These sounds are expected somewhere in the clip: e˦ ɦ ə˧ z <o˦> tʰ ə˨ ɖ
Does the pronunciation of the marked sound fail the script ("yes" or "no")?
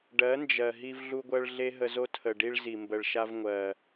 no